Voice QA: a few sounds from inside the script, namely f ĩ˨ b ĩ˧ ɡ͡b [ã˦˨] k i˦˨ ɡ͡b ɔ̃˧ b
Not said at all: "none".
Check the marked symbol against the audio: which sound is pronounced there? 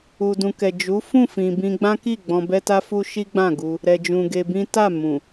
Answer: ã˦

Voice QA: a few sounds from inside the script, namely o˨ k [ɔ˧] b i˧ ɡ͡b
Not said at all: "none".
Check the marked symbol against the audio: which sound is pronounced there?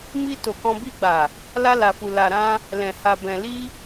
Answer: ɔ̃˧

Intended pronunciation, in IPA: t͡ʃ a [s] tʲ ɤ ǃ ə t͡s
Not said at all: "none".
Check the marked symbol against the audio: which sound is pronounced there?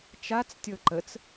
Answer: t͡s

